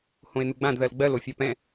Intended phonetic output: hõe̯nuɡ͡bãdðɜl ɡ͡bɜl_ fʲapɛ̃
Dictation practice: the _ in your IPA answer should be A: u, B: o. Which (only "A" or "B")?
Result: B